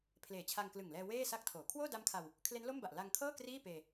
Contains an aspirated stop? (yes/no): yes